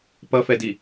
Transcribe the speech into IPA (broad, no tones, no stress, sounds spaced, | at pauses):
p ʌ f ɛ d i